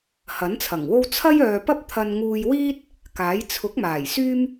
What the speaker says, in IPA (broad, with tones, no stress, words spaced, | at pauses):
hɐ˨˥nt͡sʰɐ˨˩ŋwo˥w t͡sʰɐ˥jœː˨pɐ˥p̚ t̪ʰɐ˧nŋuː˧jwiː˥t̚ | kaː˨˥j t͡sʰʊ˨˥k̚ maː˨˩jsyː˥m